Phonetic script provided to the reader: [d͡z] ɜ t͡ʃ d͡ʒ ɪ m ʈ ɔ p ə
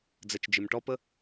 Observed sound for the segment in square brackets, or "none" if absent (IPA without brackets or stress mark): d͡z